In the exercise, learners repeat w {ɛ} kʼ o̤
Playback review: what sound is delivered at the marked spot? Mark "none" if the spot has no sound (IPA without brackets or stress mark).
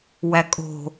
æ